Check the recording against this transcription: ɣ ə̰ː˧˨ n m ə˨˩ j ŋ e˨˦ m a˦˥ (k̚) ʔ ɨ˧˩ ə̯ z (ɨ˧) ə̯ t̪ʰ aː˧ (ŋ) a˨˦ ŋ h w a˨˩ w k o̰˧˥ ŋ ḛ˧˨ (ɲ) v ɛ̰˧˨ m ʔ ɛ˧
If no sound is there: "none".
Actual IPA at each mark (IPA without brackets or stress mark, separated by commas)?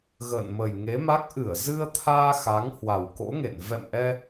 k̚, ɨ˧, x, n